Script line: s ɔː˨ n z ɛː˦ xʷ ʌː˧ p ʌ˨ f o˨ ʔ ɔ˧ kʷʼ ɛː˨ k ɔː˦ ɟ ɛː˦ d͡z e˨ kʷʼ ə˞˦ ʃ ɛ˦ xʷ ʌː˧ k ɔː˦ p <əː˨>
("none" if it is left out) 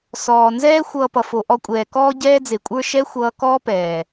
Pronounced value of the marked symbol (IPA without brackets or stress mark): ɛː˨